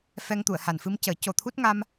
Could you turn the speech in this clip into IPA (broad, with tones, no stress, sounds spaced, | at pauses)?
f ɛ˧ ŋ t̪ u˨˩˨ ə̯ h a˨˩ n f ɨ˧ m c əː˨˩˦ c o˨˩ t̪ʰ u˦˥ t̚ ŋ a˧ m